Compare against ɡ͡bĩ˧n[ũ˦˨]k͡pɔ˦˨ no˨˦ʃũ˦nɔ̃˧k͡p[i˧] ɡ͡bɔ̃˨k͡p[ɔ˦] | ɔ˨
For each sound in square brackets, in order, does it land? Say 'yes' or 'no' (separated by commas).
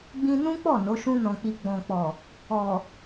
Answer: no, yes, no